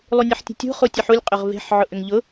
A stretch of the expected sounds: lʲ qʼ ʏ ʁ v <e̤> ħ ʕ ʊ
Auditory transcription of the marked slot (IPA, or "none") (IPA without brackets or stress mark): e̤